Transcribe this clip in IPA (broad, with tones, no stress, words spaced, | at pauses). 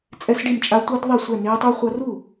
t͡sʼɛ˦˥sɖi˥˩mt͡ʃʼa˦˥ tʷɯ˦˥dðˤe˥˩sʷɛ˥˩ neː˦˥tˤu˦˥χʷʌ˦˥ ru˥˩